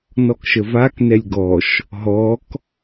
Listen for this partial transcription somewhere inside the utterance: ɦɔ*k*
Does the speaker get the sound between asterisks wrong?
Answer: no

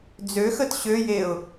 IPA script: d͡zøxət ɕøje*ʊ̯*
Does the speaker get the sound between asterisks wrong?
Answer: no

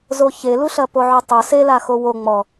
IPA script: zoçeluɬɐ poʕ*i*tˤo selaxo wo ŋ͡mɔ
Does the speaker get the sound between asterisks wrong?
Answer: yes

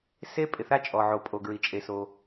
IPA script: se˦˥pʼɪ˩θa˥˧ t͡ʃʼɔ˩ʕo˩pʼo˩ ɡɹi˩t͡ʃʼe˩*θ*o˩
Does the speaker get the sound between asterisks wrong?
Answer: yes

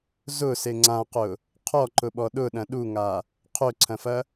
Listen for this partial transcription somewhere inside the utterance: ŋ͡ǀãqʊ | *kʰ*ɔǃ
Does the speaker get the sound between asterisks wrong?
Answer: yes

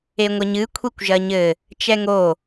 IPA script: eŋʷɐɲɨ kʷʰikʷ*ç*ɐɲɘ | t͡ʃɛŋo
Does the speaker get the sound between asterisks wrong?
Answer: yes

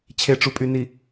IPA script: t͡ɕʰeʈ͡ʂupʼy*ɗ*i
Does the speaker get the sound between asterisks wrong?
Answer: yes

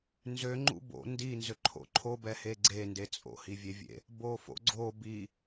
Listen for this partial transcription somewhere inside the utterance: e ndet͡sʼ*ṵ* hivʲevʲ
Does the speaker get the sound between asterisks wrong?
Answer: yes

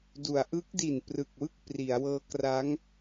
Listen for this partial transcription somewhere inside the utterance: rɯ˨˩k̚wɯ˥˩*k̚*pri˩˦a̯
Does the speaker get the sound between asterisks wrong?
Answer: no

